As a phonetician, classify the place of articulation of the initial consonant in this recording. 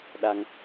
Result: alveolar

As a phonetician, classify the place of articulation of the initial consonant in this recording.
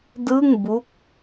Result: alveolar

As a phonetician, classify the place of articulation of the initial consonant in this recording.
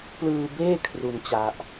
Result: labial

